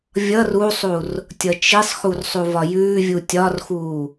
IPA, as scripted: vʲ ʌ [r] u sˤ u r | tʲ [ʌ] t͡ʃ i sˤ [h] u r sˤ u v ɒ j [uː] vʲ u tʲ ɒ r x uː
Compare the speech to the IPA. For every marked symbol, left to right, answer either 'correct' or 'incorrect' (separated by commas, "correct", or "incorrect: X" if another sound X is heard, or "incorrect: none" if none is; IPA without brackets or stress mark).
correct, correct, incorrect: x, incorrect: ʉː